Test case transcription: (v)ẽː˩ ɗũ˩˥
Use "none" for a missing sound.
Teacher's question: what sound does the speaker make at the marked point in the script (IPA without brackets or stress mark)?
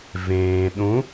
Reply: v